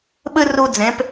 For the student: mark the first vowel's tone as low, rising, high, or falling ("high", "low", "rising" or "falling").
high